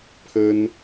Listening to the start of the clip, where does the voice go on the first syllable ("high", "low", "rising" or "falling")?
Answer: high